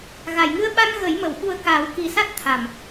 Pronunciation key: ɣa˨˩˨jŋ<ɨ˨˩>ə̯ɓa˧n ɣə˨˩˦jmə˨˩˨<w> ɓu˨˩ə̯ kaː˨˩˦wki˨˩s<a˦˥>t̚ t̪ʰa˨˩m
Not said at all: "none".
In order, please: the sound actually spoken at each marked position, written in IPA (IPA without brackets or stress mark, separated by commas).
ɨ˧, w, a˦˥